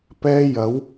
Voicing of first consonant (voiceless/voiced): voiceless